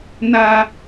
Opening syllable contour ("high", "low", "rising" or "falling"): high